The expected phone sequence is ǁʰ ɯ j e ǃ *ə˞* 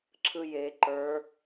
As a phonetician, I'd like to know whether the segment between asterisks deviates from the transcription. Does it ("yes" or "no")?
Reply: no